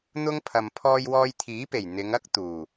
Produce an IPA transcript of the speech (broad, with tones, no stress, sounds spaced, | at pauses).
n̪ ʊ˥ ŋ pʰ ɐ˨ m pʰ ɔː˧ j w ɔː˧ j t̪ʰ iː˨˥ p e˨˩ j n̪ ɪ˨˧ ŋ ɐ˥ k̚ t̪ uː˨˩